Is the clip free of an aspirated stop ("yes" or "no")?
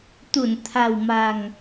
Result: no